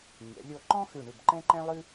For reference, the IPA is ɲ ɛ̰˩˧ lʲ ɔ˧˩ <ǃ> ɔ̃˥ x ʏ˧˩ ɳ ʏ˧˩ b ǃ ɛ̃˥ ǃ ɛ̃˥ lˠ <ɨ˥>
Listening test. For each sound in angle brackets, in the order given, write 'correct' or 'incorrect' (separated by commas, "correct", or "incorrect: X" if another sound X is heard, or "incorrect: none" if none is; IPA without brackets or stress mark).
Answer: correct, correct